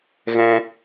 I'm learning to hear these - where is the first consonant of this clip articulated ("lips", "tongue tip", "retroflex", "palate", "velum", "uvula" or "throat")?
velum